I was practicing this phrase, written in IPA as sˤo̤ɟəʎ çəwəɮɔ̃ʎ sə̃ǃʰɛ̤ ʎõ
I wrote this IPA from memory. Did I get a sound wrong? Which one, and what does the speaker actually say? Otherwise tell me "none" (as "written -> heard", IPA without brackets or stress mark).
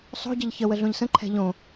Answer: ɔ̃ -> õ